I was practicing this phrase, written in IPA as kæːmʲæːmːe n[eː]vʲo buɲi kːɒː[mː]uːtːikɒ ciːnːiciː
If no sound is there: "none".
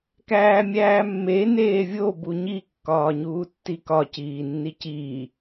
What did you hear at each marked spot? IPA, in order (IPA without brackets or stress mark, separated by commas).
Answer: eː, ɲ